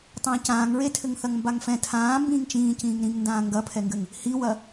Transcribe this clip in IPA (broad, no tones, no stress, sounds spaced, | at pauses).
tˤ ãː c ãː ŋ ɹ e tʰ ɘ ŋ θ ɐ ŋ m b a ŋ f ɛ̃ tʰ ãː m b ĩː ŋ t͡ʃ ĩː c ĩː ŋ ɾ ĩ ŋ n d ãː ŋ ɡ ɐ pʰ ɛ ŋ ɡ ɘ ŋ | h i w ɐ